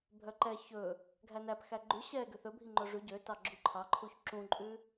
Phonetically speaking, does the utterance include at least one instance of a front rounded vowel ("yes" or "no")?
yes